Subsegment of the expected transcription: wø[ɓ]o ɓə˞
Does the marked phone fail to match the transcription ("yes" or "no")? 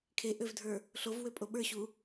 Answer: yes